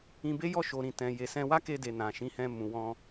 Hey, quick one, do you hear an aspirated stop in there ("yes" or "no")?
no